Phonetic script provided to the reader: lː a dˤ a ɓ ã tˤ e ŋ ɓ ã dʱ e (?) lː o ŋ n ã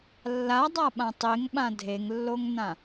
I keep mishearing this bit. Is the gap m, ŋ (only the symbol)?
ŋ